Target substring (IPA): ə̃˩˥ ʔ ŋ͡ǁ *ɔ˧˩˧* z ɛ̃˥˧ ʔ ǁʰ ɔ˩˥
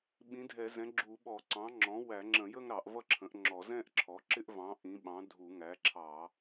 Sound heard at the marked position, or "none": ɔ˧˩˧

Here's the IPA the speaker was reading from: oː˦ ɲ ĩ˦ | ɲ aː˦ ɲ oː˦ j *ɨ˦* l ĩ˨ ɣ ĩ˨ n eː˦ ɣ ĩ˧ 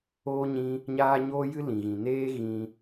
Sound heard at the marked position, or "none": ɨ˦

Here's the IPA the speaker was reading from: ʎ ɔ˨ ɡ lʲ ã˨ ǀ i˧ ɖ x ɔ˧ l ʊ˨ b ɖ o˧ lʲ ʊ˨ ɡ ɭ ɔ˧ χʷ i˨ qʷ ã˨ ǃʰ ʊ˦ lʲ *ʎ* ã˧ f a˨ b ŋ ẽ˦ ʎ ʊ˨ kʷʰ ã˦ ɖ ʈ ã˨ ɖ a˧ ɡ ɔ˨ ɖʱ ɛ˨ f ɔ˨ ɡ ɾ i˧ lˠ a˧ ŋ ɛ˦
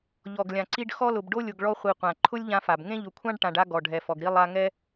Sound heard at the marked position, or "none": ʎ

